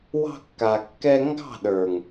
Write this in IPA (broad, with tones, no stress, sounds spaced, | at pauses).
w ɑ̤˧ kː a˨ kː ɛ˧ ŋ ɡ ɑ̤˦˨ ɗ ə˞˨ ŋ